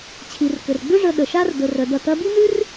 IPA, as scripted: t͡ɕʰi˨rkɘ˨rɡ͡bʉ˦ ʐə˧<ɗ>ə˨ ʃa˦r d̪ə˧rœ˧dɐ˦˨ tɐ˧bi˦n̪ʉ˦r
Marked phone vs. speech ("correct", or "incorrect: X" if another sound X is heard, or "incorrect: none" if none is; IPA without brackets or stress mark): correct